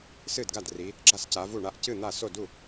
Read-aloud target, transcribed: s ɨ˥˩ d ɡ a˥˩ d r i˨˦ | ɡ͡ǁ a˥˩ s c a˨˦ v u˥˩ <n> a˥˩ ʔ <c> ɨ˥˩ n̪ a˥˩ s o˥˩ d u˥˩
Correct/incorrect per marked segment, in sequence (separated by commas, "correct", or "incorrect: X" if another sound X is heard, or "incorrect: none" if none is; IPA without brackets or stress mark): incorrect: ɳ, correct